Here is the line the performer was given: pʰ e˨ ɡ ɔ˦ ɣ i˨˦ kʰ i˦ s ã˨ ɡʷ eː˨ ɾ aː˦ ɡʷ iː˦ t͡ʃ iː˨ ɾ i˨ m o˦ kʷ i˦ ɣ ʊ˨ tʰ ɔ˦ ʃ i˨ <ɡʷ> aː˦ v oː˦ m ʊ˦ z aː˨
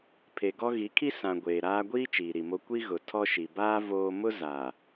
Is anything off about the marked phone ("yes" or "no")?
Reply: yes